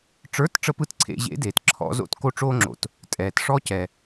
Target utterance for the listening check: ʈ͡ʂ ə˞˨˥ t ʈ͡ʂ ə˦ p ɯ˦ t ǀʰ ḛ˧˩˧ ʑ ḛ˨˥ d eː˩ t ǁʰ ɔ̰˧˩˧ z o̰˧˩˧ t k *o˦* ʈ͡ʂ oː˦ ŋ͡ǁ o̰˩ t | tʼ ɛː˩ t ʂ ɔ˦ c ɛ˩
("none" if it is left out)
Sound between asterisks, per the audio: o˦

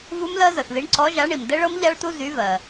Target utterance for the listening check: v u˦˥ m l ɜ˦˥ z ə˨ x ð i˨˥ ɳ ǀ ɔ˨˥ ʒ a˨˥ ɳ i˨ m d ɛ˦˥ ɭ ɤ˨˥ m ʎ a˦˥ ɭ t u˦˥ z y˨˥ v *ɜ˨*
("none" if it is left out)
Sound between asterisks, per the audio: ɜ˨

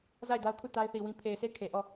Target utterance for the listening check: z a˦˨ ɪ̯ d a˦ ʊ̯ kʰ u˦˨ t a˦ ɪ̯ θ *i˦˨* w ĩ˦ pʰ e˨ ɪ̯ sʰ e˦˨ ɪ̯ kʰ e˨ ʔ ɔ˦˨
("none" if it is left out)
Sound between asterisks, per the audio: i˨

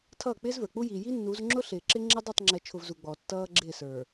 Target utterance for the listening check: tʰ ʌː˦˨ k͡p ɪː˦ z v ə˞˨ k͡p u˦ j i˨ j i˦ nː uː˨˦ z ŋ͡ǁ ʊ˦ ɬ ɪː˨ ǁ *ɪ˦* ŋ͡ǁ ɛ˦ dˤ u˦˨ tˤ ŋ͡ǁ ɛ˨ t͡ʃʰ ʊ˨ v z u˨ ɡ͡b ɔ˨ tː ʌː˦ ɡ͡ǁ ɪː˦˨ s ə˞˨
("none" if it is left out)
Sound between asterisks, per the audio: ɪ˦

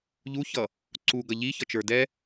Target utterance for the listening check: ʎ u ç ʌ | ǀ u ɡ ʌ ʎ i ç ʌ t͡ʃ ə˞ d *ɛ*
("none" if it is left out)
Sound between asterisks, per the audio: ɛ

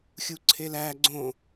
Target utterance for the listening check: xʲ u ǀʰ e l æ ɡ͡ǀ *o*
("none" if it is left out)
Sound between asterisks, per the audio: õ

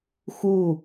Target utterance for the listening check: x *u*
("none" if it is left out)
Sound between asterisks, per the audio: u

